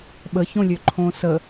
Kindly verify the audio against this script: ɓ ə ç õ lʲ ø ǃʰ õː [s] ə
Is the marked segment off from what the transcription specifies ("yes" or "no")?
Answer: no